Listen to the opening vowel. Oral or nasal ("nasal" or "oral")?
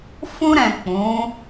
nasal